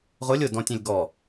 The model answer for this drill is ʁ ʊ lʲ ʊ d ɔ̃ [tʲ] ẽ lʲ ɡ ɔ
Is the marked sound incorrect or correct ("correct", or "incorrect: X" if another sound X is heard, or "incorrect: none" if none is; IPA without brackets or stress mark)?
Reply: correct